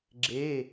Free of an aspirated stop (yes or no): yes